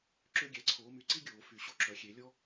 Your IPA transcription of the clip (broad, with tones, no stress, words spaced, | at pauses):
ǁø˥ɡʲæ˩˥ǀʰoː˩˥my˩˥ ǀi˥ ɡʲoː˨˩˦fy˨˩˦ɕo˥ ǁœ˩˥xʲe˨˩˦lʲɔ˥